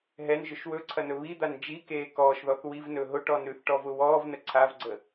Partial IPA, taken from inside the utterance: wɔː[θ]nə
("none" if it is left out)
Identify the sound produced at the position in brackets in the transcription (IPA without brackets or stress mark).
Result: v